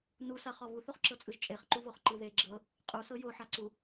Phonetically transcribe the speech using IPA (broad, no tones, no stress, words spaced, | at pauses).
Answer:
nusaχɔ βuθoχǁɤt͡sʼɯʒ t͡ʃʼeχǃuβoχǃɯ ðeɡ͡ǁɤ | qʼusɤ joħaǀu